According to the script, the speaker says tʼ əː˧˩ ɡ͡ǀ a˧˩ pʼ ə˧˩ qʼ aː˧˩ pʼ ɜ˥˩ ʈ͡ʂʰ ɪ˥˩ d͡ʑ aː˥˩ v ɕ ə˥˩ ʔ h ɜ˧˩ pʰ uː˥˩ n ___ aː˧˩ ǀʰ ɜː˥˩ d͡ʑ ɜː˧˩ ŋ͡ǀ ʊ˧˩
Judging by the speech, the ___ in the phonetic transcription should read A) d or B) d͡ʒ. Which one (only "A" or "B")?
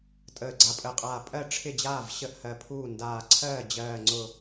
A